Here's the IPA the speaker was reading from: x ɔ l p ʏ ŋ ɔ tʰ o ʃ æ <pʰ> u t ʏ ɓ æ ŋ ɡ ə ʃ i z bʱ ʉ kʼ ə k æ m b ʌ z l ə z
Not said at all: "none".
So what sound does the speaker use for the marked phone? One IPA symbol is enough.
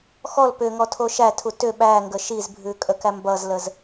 tʰ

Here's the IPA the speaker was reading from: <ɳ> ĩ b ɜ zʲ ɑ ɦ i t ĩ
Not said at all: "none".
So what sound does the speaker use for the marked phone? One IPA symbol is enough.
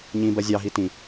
ɲ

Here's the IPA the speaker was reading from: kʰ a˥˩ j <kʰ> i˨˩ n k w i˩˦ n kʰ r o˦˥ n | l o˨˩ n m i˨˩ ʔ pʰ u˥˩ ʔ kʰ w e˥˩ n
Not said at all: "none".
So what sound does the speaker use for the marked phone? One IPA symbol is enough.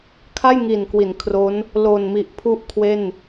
ŋ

